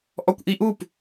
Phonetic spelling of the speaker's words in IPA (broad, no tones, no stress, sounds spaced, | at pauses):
ʔ ɔ kʷ ʔ i ʔ u p